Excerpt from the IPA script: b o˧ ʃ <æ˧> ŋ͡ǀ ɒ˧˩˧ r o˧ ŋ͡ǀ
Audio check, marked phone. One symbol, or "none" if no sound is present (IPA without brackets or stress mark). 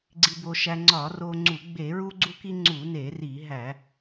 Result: æ˧